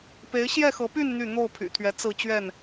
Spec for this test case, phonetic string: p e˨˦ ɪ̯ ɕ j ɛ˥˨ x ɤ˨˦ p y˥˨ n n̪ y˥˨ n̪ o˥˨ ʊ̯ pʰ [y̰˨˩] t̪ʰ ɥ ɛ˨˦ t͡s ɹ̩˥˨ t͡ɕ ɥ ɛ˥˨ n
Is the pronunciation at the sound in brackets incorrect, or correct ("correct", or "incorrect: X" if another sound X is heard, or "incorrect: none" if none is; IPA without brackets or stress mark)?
correct